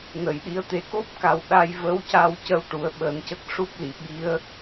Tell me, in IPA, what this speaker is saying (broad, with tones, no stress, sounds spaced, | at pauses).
n ə˨˩˨ j ɗ i˧˥ ə̯ t̪ e˨˩ k o˦˥ p̚ k a˨˩ w ɗ a˧ j v ə˧˥ w c a˧ w c ə˧ w ʈ u˨˩˦ ə̯ ɓ əː˨˩˦ n c ə˦˥ k̚ ʂ u˦˥ p̚ l i˨˩˨ ɓ i˧˥ ə̯